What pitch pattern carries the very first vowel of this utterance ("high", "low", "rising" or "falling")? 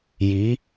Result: rising